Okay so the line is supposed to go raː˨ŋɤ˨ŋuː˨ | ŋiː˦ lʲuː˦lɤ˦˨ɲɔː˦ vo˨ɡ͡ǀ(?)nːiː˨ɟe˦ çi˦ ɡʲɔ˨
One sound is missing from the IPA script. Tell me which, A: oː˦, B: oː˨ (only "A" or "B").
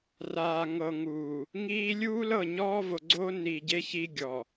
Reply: A